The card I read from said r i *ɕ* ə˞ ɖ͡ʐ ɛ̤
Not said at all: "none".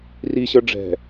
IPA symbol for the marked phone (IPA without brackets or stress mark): ɕ